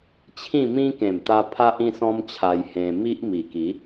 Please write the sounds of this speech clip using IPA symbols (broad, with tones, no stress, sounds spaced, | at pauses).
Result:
t͡ɕʰ ĩ˥˧ m ĩ˦ k ẽ˨˩ m t̪ a˧ pʰ a˦ ʔ ĩ˥˧ s ɔ̃˦ m t͡ɕʰ a˧ j h ẽ˧ m i˦ ʔ m i˨˩ k i˨˦